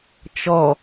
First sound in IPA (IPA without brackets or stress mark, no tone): t͡ʃ